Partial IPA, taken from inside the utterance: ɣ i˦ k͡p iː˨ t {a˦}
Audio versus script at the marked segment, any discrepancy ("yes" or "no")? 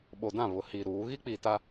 no